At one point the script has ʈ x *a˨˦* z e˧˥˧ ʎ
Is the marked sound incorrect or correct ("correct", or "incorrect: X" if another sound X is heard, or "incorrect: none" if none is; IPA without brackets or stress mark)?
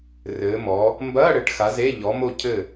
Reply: correct